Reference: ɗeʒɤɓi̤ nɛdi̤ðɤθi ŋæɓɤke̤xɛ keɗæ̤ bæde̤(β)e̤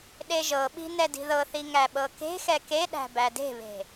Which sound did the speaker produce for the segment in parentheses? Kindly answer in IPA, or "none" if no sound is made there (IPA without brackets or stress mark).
β